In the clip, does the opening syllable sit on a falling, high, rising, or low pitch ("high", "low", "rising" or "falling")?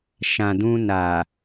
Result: low